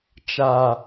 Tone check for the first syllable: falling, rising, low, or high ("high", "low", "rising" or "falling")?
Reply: low